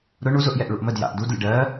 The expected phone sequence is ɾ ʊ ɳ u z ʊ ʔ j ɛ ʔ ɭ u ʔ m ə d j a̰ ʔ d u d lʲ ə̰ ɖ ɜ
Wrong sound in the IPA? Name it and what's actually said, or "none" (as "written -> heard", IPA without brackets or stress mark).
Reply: none